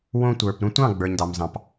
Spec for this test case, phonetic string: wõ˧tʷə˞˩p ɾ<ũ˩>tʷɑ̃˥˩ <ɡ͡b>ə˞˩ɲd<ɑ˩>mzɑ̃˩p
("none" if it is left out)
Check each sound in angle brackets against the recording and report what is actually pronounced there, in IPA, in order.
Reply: ũ˧, ɡ͡b, ɑ˩

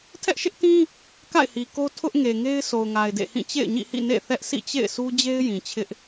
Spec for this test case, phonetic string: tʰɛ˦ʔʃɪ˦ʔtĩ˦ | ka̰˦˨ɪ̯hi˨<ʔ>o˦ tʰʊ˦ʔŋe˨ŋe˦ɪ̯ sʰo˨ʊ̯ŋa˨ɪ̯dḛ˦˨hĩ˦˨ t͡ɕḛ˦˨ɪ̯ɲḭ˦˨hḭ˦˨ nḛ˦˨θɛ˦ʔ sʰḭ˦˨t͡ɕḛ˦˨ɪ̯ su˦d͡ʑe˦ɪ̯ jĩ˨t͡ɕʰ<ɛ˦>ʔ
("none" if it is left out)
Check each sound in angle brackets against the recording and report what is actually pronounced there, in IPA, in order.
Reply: k, ɪ˦

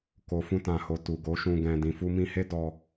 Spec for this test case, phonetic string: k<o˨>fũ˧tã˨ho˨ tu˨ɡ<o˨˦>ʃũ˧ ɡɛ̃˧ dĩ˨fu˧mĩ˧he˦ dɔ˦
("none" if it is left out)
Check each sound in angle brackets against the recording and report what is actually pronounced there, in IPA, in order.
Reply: o˨, o˨˦

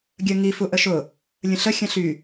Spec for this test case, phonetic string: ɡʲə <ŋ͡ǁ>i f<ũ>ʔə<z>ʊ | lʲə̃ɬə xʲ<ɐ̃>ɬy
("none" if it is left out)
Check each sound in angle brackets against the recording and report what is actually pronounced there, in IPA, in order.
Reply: ŋ, u, ʃ, ɐ̃

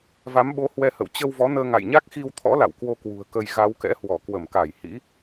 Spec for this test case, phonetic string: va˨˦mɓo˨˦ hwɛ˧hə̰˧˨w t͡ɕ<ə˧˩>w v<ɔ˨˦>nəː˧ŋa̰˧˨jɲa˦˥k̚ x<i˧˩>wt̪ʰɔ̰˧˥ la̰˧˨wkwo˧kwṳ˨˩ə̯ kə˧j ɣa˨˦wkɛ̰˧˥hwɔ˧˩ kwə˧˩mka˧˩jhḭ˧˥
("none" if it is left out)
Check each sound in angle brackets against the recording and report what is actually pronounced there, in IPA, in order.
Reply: ə˧, ɔ˨˦, i˧

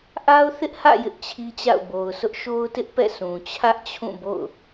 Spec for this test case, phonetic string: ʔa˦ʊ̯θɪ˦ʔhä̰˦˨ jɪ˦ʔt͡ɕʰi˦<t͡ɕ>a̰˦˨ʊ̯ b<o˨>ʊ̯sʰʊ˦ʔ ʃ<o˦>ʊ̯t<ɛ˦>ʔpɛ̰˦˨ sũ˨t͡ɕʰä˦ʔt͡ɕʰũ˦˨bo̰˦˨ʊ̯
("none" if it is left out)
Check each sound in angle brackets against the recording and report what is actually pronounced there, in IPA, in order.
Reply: t͡ɕ, o˨, o˦, ɪ˦

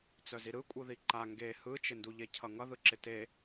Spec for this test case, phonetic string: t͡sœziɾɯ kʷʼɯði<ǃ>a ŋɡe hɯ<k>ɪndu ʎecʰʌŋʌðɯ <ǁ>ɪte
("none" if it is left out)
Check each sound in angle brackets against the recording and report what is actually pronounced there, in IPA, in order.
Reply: ǃ, t͡ʃ, ǁ

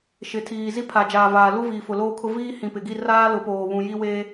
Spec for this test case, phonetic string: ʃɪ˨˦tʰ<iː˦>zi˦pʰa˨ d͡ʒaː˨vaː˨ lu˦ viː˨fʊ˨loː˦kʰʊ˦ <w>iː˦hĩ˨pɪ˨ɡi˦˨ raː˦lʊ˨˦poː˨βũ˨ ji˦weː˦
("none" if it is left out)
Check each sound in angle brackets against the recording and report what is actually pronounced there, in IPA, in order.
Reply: iː˨, v

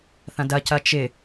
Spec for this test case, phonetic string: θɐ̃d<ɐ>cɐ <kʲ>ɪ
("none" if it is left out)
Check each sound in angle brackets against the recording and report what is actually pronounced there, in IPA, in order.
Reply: ɐ, t͡ʃ

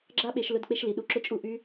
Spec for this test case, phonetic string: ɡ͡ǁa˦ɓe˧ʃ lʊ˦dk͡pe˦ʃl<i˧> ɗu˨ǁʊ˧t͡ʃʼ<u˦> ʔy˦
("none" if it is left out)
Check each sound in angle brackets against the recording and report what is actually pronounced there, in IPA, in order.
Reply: i˨˦, u˧

